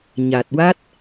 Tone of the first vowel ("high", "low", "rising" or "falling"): low